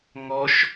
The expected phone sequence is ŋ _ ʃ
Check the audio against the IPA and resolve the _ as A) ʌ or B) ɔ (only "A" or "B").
B